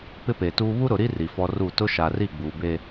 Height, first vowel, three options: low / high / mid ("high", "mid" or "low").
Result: high